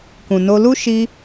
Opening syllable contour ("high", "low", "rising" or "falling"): low